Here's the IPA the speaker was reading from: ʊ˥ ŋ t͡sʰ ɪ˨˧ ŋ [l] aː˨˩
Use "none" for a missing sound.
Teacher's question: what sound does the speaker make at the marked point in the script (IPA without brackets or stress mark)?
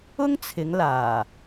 l